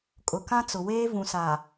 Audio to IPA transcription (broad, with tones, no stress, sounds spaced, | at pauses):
kʼ ʊ˨ k ã˦ t͡s ʊ˨ w eː˦ v ũ˨ s aː˨